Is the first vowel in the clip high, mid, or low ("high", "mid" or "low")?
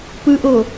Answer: high